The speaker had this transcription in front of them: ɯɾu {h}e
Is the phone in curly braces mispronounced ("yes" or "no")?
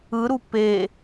yes